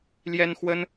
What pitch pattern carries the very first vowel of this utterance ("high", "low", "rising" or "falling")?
high